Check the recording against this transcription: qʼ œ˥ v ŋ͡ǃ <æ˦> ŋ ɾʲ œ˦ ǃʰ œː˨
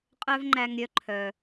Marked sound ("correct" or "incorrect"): correct